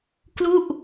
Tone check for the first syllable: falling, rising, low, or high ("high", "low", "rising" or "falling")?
falling